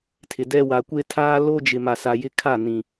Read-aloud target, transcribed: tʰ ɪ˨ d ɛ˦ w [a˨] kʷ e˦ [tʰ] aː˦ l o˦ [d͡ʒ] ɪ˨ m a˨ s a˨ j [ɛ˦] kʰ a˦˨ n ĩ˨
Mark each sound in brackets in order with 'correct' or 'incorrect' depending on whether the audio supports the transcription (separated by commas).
correct, correct, correct, incorrect